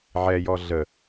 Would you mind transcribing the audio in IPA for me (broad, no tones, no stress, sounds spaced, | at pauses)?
ʕ ɛ j ɔ ɮ ə